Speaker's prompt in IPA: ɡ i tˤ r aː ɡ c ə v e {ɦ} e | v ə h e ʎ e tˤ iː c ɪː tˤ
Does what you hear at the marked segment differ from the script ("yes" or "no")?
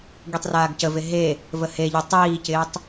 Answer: no